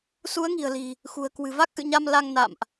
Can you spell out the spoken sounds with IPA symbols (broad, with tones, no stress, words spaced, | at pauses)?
su˨˦ə̯ŋi̤˨˩ə̯li̤˨˩ | xṳ˨˩ə̯ kwɨ̤˨˩va˦˥k̚ʔɨ̰˧˨ɲa˧m la˧ŋna̰˧˨mʔ